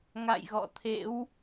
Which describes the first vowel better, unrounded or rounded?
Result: unrounded